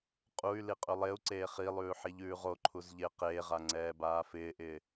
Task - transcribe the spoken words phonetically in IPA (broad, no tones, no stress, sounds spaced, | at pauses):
qʼ u y̯ l i qʼ ʉ lˠ e u̯ ǀ eː χ i lˠ ʉː ħ i ʎ ʉː ʁ o ǃʰ u z ʎ ɪː q eː ʁ a ŋ͡ǀ ɛː b aː f ɪː ʔ ɪː